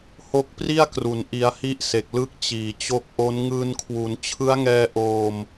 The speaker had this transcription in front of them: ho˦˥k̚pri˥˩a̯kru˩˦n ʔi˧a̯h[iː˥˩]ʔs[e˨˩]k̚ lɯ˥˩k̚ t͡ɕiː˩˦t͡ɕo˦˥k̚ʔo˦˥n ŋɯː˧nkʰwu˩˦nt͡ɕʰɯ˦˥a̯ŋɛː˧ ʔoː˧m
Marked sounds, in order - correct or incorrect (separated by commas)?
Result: incorrect, correct